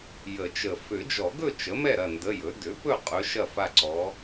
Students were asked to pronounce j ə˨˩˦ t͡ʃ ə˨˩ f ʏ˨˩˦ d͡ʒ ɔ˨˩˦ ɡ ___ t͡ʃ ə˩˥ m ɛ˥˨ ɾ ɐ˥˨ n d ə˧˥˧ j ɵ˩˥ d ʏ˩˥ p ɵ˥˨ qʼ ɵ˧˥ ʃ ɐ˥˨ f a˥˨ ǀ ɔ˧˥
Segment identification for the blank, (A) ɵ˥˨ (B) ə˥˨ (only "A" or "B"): A